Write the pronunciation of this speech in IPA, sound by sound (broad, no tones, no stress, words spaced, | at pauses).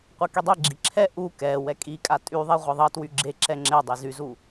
qʷekidˤɛɡ͡ǁi ǁʰɛ ʔu kɛ wɛkʼikʼa tʼyðˤe ʁʷɛðˤʌtwy ɡ͡ǁe ǁɛŋ͡ǁedˤi zyzu